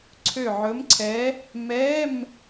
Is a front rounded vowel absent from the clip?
no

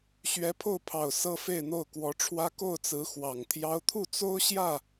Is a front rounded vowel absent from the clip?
yes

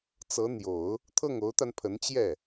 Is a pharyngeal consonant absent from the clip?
yes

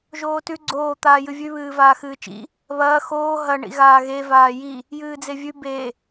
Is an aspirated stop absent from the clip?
yes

